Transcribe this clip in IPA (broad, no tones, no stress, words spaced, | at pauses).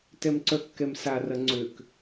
tɛmǀœkːɛmsa rɐŋ͡ǀøk